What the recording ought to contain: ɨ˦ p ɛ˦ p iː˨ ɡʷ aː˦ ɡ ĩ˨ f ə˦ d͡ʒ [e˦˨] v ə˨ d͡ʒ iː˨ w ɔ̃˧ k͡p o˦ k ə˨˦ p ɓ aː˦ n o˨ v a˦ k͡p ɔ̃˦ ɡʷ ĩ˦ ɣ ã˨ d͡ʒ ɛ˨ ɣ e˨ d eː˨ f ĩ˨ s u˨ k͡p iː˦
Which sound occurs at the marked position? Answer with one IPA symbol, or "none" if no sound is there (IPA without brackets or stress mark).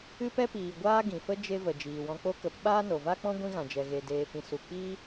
e˦